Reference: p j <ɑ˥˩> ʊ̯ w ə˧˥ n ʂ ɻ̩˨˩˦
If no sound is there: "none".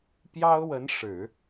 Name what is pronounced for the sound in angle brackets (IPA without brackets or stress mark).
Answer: ɑ˥